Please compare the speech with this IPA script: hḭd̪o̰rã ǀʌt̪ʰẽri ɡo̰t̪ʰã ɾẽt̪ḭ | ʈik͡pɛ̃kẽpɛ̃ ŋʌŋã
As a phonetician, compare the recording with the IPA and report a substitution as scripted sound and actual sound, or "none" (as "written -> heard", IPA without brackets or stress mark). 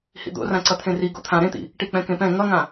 none